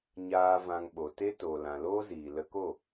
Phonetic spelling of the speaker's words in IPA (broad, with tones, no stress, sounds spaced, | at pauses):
ɲ aː˧ v ã˧ ŋ ɓ o˨ t e˦ t oː˨ l ã˨ l oː˦ z iː˨ l ə˧ k o˦˨